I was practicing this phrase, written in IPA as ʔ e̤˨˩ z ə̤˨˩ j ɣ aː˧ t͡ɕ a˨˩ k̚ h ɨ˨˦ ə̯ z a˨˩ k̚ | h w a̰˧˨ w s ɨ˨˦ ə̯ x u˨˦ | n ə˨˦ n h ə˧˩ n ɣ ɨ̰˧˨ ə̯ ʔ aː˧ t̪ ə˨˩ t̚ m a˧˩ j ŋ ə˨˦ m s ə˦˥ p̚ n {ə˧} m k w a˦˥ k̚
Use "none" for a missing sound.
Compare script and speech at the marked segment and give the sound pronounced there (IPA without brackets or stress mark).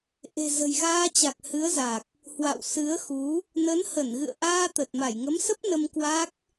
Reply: ə˧